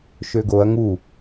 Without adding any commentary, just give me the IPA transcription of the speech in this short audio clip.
ʃ ø ɡ o ɐ̯ ŋ u

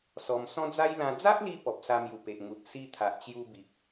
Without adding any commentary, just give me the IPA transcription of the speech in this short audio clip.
s ɔ˧ m s ɔ̃˦ d͡z a˦ j l ã˧ d͡z a˦ ʔ l i˧ p ɔ˨ p̚ s a˧ m j u˨˩ p e˨ ʔ ŋ u˨ t̚ s i˦ t̪ʰ a˨ ʔ t͡ɕ j u˧ b i˨ k̚

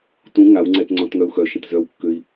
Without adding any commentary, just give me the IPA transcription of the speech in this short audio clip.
t ũ ŋ a w ŋ͡ǀ ɛ t ŋ͡ǀ ɔ̃ t ŋ œ u̯ x œ ʃ ə̃ t z œ w kː ø i̯

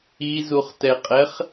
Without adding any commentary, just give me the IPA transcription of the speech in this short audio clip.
i z u χ t ɛ qʼ ɛ χ

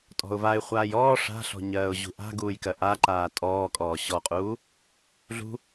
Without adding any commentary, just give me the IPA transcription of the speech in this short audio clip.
tʼ ɔ̤ ʊ̯ v a ɪ̯ χʷ aː j ɔː ʂ a̤ ɬ ɔ̤ ɲ ɜː ʊ̯ ʑ ṳ ʔ a̤ ɡ uː j k ɜ ʔ a ǃ aː tʼ ɔː kʼ ɔː ɕ ɔ qʼ uː | ɮ ṳ

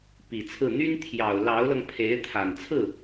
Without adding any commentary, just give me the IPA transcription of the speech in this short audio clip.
p i˨˩ t͡sʰ ɹ̩˥˩ n̪ y˥ n t̪ʰ j ɑ˨˩ ʊ̯ l ɑ˧˥ ʊ̯ l ɤ˧ ŋ pʰ e˧˥ ɪ̯ t̪ʰ a˨˩ n t͡sʰ ɹ̩˥˩

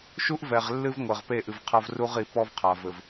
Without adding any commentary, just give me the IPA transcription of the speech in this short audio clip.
ʃ u˦ ʔ v ɛ˨ ʁ lː ɨ˦ v ŋʷ ɘ˨ ʁ p e˦˨ ʔ ɨ˨ v qʰ ɐ˦ v r u˦ ʁ i˨˦ p ɔ˦ v qʰ a˨ v ɘ˨ v

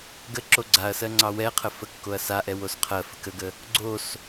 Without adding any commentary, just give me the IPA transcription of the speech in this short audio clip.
ɡ ə ǁ o ɡ͡ǀ a ɐ̯ s ɜ ŋ͡ǀ ɑ w ɛ qʰ ə f ə kː o ɐ̯ s a ʔ ɛ w o s qʰ ɜ f ə k ə ɡ ə | ɡ͡ǀ o s

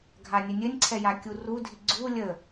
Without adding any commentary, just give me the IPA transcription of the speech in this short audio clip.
ɡʱ a nʲ ɘ nʲ ɘ nʲ ǀʰ ɛ j a kʲ u r u dʱ i ɡ͡ǀ u lʲ ə

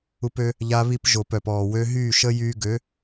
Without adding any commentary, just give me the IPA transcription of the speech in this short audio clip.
u˧ p ø˧ | ʎ a˧ β i˧ p ʒ o˨ p œ˨ p ɔː˨ w ø˧ ɦ yː˦˨ ʃ ə˦ j yː˧ ɡ ø˨˦

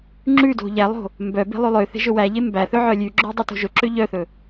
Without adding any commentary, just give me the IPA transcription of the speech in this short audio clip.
ŋ͡ǁ ʉ d o̤ ʎ æ lˠ o̤ | m b œ b e̤ lˠ ʉ lˠ ø θ e̤ ʒ ɵ w æ ʎ e m b æ θ ɵ ʕ œ lʲ ʉ ɡ͡ǁ ɵ dˤ ʉ t o̤ ʒ ɵ ǁ ø ʎ œ θ ɵ

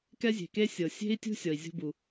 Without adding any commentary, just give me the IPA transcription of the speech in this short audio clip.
k ɛ˥ zʲ e̤˩ k e˥ sʲ ɤ˩ sʲ e̤˥ i̯ tʲ ṳ˥ sʲ ɔ˩ i̯ zʲ o̤˥ b u˩

